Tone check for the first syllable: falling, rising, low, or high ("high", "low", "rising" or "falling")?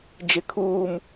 low